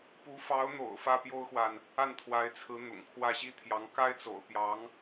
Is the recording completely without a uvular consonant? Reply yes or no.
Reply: yes